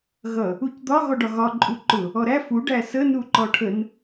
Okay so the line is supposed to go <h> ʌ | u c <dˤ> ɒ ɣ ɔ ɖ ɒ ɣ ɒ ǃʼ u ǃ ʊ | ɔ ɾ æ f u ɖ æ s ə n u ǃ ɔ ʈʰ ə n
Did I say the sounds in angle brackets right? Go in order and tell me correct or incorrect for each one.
incorrect: ɣ, incorrect: d̪

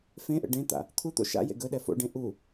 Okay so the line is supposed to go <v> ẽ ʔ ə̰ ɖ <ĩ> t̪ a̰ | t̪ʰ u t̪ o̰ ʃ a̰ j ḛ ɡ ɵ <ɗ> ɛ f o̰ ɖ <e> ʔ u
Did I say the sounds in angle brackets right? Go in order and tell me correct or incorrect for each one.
incorrect: f, incorrect: ẽ, correct, incorrect: ẽ

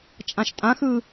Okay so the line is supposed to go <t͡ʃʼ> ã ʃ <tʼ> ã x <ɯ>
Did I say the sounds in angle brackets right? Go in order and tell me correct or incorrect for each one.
correct, correct, correct

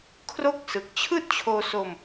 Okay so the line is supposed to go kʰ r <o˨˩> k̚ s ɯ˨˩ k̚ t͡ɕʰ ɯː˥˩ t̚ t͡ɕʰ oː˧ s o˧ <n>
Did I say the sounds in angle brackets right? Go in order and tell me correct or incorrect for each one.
incorrect: o˥˩, incorrect: m

